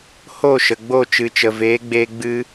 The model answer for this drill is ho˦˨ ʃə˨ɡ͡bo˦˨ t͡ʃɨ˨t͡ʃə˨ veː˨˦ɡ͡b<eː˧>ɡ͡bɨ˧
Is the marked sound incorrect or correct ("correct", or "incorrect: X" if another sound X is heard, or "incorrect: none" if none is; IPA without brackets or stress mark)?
correct